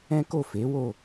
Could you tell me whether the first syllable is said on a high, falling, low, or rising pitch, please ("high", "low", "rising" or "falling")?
high